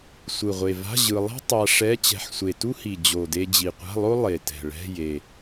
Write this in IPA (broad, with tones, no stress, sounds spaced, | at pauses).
sʷ ɯ˨˩ ʁʷ e˨˩ v a̤˧˥˧ ʑ ɯ˧ lˠ ɛ̤˥ tˤ a˧ ʂ ɛ˧˥˧ t͡ɕ ɛ̤˧ ħ sʷ e˨˩ t u˥ h i˨˩ d͡ʑ o˨˩ d e˧ d͡ʑ i˨˩ qʷ a̤˧˥˧ lˠ o˥ lˠ e˨˩ t ɛ̤˨˩ ɭ ɛ̤˧˥˧ j e˨˩